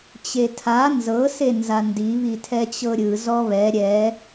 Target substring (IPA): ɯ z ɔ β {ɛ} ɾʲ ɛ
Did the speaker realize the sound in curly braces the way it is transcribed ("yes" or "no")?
yes